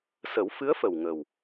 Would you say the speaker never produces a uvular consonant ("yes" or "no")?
yes